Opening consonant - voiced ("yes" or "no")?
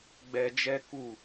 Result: yes